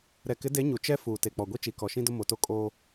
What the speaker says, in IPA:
ɾɛ˨ kɪ˨˦de˨˦ ɲu˨ t͡ʃɛ˦ fuː˨ te˨k͡pɔ˨ɡʷi˦ t͡ʃi˨kɔ˨ʃĩ˦dʊ˦ mo˨to˦kʼoː˦

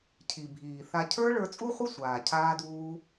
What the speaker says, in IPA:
cʰi˨bʱiː˨θa˧ cʰə˞˦ ɭə˞˧t͡sʼu˦χʷɪ˦ sʷaː˨cʰaː˦duː˦

